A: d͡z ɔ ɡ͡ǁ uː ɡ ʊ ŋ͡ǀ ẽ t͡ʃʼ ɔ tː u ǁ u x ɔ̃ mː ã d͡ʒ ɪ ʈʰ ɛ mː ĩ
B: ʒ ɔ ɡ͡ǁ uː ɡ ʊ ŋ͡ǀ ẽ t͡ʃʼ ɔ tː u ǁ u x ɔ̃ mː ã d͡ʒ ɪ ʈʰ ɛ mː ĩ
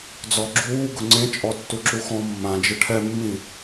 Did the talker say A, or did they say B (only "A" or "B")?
A